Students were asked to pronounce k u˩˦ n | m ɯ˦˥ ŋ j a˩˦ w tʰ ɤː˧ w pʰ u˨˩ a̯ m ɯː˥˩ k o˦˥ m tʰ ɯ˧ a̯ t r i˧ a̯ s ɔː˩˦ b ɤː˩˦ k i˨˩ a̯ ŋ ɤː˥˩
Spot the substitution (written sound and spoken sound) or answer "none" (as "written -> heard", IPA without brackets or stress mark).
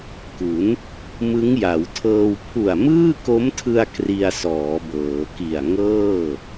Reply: t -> k